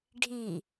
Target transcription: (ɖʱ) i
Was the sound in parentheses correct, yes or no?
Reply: yes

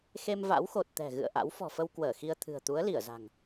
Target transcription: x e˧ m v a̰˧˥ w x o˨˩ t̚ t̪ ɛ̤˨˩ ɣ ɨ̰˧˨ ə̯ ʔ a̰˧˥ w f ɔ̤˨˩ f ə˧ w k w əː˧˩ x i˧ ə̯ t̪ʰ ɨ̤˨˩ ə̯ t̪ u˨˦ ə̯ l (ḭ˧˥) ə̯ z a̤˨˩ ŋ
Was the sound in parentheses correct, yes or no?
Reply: no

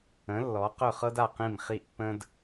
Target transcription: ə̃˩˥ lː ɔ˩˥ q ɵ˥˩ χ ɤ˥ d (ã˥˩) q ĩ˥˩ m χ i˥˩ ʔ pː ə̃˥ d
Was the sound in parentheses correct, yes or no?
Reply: no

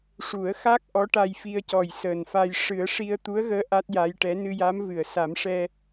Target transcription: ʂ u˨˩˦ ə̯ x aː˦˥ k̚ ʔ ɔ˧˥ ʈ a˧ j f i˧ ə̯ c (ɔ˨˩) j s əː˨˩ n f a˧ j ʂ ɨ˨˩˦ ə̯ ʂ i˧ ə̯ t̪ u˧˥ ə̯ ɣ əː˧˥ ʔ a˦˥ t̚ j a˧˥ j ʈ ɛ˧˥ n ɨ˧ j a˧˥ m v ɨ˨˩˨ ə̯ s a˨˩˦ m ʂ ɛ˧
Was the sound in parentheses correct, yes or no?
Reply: yes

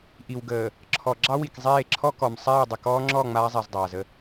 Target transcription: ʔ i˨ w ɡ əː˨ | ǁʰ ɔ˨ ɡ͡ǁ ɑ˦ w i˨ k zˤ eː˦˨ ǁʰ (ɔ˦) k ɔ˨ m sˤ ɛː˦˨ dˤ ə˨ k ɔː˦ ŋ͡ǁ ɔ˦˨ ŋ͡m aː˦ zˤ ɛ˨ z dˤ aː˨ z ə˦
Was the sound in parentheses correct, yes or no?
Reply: yes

